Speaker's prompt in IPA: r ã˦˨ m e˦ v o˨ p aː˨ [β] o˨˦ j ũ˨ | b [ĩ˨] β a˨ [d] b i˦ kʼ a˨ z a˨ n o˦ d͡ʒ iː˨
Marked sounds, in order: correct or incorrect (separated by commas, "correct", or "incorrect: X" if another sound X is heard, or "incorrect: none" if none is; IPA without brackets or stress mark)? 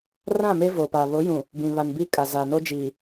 correct, correct, incorrect: n